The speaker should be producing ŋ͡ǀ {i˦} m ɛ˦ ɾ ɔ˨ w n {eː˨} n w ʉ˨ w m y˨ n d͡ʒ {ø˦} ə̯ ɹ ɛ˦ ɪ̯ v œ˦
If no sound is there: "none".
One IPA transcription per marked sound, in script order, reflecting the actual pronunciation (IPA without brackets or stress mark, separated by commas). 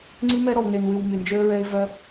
i˦, e˨, ø˦